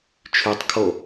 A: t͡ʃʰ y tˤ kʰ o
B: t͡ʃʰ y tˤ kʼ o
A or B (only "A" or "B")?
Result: A